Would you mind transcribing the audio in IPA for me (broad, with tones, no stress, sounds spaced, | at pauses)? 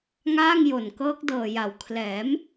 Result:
ŋ aː˥˩ ŋ j o˨˩ n k ɤː˦˥ k̚ d ɤː˨˩ j a˩˦ w kʰ l ɛː˩˦ m